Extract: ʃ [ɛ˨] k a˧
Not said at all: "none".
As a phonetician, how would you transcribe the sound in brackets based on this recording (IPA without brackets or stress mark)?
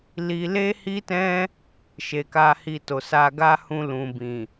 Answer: e˨